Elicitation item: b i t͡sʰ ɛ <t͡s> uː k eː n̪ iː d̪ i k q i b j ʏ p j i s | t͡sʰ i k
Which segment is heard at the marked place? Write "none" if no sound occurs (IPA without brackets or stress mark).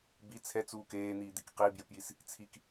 t͡s